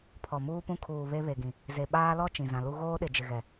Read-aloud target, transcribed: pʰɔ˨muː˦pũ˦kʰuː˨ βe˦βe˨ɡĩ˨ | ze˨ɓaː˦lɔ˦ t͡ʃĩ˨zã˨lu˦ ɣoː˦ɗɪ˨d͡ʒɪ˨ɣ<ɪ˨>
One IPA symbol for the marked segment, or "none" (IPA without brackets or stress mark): ɛ˨